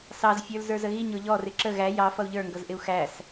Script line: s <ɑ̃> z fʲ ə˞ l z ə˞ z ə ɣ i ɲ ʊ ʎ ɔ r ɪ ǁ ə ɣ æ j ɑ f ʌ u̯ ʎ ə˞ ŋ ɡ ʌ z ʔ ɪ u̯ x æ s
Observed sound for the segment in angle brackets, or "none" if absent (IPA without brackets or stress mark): ɑ